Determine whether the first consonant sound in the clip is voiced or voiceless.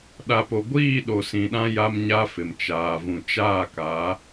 voiced